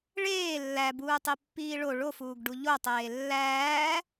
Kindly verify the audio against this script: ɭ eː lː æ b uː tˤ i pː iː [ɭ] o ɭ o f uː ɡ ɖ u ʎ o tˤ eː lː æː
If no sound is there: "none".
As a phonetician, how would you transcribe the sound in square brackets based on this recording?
ɭ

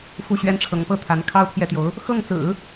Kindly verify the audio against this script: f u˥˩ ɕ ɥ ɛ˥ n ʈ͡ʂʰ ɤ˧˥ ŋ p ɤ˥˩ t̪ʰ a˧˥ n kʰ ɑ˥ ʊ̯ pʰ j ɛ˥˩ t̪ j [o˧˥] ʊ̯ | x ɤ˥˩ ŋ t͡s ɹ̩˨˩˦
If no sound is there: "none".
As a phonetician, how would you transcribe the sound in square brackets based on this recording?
o˧˥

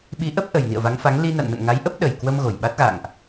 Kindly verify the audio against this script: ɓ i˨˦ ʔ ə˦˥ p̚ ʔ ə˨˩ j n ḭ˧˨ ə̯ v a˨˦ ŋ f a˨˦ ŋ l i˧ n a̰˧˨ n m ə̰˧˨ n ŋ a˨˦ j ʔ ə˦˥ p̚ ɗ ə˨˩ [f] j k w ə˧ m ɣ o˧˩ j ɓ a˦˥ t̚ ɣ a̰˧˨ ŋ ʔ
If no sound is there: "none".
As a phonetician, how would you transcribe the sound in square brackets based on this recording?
none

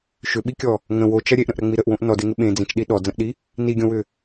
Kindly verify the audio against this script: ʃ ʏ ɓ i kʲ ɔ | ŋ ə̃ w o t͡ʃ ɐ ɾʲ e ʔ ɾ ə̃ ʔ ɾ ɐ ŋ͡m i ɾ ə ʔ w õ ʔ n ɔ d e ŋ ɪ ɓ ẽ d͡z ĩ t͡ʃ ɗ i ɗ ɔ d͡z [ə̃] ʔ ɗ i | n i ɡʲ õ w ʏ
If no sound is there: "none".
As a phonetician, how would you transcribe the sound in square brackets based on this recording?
ə̃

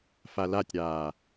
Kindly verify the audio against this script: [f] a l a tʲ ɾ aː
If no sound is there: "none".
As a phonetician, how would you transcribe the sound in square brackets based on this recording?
f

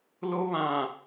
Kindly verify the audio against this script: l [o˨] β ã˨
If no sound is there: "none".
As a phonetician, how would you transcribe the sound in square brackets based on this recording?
o˦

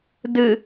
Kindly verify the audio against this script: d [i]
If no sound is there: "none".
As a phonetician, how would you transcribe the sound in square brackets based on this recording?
ɨ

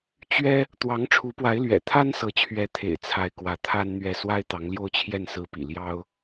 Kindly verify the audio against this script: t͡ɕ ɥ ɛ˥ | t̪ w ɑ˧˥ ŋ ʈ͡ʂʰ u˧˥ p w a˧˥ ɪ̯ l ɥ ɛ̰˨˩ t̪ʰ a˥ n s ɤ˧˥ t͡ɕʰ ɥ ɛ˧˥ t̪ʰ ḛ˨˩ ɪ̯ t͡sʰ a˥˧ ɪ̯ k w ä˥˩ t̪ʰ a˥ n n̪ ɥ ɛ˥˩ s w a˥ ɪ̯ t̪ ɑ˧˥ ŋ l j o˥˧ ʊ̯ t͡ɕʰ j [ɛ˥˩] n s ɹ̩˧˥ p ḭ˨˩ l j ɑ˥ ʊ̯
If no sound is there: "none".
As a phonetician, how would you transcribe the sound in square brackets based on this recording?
ɛ˥˩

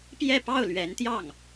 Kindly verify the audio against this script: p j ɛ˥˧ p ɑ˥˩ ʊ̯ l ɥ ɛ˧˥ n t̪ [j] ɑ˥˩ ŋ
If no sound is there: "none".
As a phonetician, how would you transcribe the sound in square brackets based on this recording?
j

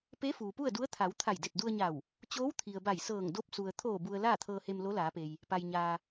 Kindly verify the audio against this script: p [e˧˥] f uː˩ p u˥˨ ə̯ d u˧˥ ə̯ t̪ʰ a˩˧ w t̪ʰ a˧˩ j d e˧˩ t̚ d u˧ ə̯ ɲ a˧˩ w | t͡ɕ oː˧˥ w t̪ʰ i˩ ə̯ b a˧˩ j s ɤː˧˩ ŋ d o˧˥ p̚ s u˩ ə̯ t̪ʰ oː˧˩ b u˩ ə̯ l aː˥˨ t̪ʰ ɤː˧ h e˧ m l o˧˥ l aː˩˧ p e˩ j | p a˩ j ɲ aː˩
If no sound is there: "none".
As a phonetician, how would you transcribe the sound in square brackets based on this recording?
e˧˥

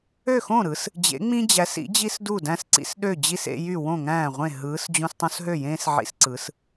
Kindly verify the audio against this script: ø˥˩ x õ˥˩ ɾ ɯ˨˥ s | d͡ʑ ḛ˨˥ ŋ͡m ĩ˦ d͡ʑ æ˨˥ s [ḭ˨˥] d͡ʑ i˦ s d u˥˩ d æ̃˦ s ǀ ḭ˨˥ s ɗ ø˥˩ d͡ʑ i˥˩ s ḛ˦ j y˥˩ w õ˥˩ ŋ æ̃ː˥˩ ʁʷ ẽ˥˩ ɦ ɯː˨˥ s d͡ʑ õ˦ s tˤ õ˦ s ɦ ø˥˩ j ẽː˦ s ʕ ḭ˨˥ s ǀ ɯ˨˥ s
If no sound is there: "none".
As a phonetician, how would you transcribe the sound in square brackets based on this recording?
ḭ˨˥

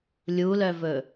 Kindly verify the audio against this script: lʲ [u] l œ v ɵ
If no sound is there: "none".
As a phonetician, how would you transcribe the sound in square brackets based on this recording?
u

